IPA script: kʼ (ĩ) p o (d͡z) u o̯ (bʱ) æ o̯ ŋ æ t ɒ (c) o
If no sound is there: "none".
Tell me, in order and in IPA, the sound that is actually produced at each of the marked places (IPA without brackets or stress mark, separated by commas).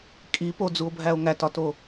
i, d͡z, bʱ, t